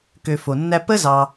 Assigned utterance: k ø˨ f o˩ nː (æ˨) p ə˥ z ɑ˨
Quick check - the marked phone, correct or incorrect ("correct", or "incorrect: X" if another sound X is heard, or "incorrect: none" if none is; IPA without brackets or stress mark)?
incorrect: æ˦